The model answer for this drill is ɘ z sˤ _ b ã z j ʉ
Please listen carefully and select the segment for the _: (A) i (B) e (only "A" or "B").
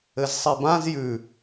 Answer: A